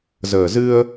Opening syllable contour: low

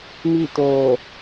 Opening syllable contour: falling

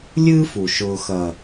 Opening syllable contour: high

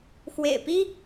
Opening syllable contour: low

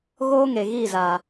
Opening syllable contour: high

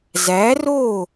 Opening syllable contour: rising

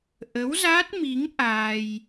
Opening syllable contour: rising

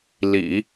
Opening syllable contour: low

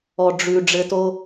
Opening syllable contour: low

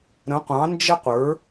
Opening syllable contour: rising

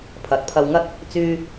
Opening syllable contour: low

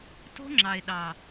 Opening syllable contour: high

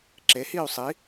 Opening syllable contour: rising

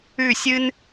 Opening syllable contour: falling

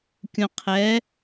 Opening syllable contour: low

